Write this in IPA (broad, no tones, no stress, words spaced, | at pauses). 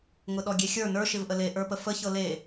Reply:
ŋʊɗɔɡʲexʲə˞ nə˞ ʃɪvʔəle ʔə˞pəfə çɤle